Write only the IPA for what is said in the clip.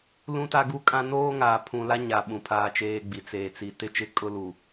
lũ˦ta˦ɡu˦kʼã˦ noː˦ŋaː˨ pʰũ˨la˦ɲa˨ ɓũ˨pʰaː˦t͡ʃeː˦ɡ͡bi˨ t͡seː˨t͡si˨ tɪ˦t͡ʃɪ˦˨ kʼʊ˦lu˨

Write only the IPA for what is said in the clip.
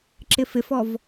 ǁɪfɪfɔv

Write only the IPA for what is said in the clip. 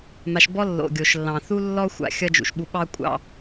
ma˧ʃ bɔ˦ lːo̰˨ɡʲo˨ʃlːɑ̃˨ θu˦lːɔ˦ xʷa̰˨ xʲʌ˦d͡ʒṵ˨ʃɓu˧ ɓɑ˦kʷʼɑ̰˧

